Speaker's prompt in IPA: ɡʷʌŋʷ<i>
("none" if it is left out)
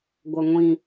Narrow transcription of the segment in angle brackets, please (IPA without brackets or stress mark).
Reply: ĩ